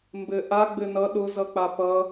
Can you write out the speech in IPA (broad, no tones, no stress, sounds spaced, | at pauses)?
m b ɘ ʔ a ɡ͡b ɘ n ʌ ɗ ʊ z ʌ k͡p a p ʌ